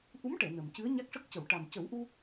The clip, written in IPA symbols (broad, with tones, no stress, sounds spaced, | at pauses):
ʔ u˧˥ m ʈ ɛ˨˩˨ n ə˨˩ m c ɨ˧˥ ə̯ ɲ a˦˥ k̚ ʂ ə˦˥ k̚ c ə˨˩˨ w ʈ a˨˩ m c ə˨˩˦ w ʔ u˧